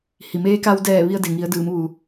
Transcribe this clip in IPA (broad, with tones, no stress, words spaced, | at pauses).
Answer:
hi˩meː˧ka˧wdɛː˧˩ ʋi˧ə̯ de˩ŋi˩˧ə̯dɯː˩˧m ʋu˩